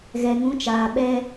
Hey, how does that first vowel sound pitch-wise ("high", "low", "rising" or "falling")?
low